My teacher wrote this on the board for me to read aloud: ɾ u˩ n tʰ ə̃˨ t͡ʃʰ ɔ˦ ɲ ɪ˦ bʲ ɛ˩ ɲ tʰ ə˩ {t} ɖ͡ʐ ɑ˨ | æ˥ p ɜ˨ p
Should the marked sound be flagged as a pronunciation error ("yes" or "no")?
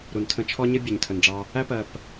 yes